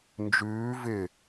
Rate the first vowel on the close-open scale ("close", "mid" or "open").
close